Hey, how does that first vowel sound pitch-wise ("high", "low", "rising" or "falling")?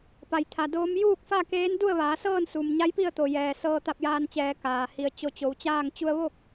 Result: low